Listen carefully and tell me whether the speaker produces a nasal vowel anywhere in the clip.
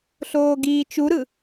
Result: no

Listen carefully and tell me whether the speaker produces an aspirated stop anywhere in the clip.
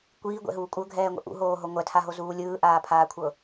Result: yes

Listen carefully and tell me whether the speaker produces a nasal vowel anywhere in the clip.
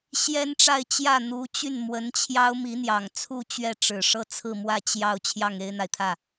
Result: no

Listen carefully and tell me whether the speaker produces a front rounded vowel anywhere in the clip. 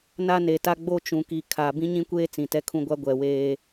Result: no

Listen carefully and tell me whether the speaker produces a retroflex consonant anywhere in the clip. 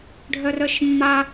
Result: yes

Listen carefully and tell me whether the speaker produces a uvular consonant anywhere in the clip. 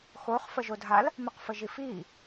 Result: yes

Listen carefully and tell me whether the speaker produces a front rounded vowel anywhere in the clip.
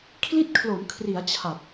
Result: no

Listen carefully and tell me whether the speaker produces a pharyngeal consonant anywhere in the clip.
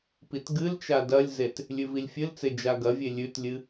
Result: no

